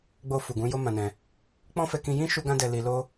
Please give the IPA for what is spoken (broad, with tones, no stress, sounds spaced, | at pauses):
ɡ͡b o˧ f u˨ ɡ ũ˨˦ j o˦ m ã˧ n ɛ̃˧ | k͡p ɔ̃˦ f ɛ˧ k ĩ˧ j ĩ˦ ʃ u˦ ɡ ã˦ d ɛ˧ l i˧ l o˦